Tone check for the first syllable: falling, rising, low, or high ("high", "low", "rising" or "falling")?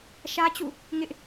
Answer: high